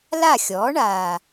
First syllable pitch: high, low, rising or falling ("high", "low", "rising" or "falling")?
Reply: falling